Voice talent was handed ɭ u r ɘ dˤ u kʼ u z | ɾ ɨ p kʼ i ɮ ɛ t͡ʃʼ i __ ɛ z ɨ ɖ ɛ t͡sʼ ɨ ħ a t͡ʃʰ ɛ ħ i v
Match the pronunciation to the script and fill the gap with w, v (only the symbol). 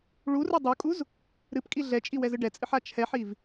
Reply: w